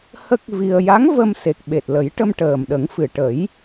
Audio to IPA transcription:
h ə˦˥ k̚ v i˧ ə̯ j a˧˥ ŋ v ə˧ m s e˨˩ k̚ ɓ e˨˩ t̚ l ə˨˩˦ j ʈ ə˧ m ʈ əː˨˩ m ɗ ə˨˩˦ ŋ f ɨ˨˩ ʈ ə˨˩˦ j

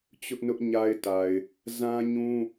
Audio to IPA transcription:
t͡ɕ ʊ˦ ʔ n ʊ˦ ʔ ɲ a˦ ɪ̯ t a˨ ɪ̯ | z ã˦ ɲ ũ˦

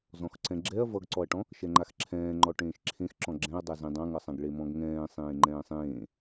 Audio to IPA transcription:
z ɔ̃ x ǀ ɛ̃ ɡ͡ǁ ɛ ɐ̯ v ʌ ɡ ǀ ɔ ɐ̯ ʈ ɔ̃ | ʃ ɛ ŋ͡ǃ a x ǁʰ ɛ̃ː ŋ͡ǃ ɔ ʈ ẽː ʃ ǁʰ ẽ x ǁ ɔ̃ ɡ͡ǁ ɛ̃ ɐ̯ dˤ a z ẽ dˤ ã ŋ ʌ sˤ ã ɡ ɭ e m ɔ̃ ɡ ŋ ɛ̃ː sˤ ẽː ŋ͡ǃ ɛ̃ː sˤ ẽː

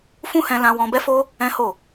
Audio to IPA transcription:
f ũ˦ h ɛ̃˧ l ã˧ w ɔ̃˧ b ɛ˦ f o˦ | ɛ̃˦ h o˦˨

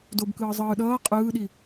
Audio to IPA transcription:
d o b k ɯː zˤ ɯː ɗ ʌː qʼ ɯː ɗ i

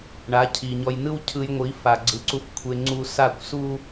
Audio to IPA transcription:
ɳ a˨˦ cʰ i˨ ɲ ɔ˧ j n ɯ˦ w cʰ ɯ˧ j ŋʷ i˨˦ f a˨ ɡ͡ǀ ɯ˨˦ ǀ u˧ f kʷʰ e˧ ŋ͡ǀ u˧ s a˦˨ kʷ s u˦

